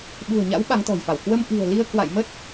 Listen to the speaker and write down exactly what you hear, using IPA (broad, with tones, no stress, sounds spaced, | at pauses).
ɓ ṳ˨˩ ə̯ ɲ a̰˧˥ w ɓ a˨˦ ŋ t̪ ɔ̤˨˩ j f a˧˩ w k w ə˧ m ʔ i̤˨˩ ə̯ l i˧ ə̯ k w a̰˧˨ j m ə˦˥ t̚